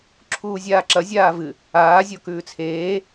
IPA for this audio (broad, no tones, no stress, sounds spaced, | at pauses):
ǁʰ uː zʲ aː ǁ ɐ zʲ aː v ɨ | aː zʲ o k ʉː t͡sʰ eː